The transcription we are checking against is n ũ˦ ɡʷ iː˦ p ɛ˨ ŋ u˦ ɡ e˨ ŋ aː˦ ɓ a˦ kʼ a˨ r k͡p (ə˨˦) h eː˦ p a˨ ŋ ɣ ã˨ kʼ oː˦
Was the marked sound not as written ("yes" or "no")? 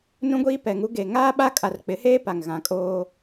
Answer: yes